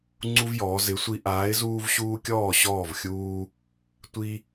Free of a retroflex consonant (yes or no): yes